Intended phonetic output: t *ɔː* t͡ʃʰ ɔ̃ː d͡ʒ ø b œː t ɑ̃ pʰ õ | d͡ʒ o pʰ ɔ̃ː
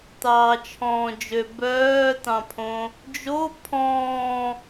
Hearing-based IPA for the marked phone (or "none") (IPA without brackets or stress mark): ɑː